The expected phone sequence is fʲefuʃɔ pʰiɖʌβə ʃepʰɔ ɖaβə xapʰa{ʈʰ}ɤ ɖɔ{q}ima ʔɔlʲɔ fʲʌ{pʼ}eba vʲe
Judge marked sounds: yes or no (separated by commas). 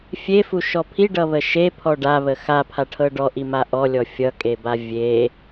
yes, no, no